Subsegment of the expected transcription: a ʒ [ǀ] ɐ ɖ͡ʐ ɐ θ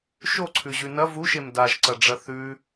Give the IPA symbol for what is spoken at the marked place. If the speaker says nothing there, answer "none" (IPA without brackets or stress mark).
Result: ǀ